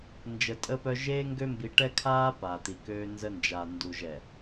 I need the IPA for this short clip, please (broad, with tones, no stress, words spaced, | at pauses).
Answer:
nd͡ʒə˨tʼəː˦pœ˦ ʒeː˦ŋɡø˦ mbi˨ʈɛ˦kʰaː˦ pa˨t̪i˨køː˦ nzə˦nd͡ʒa˨ ndu˨ʒɛ˨